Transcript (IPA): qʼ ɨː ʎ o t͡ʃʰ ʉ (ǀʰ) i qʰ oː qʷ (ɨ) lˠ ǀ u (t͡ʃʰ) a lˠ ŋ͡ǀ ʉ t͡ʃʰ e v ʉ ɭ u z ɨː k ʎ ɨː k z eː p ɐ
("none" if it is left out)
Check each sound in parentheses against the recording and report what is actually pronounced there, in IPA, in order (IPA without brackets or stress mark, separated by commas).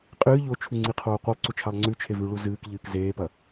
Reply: ŋ͡ǀ, ɨ, t͡ʃʰ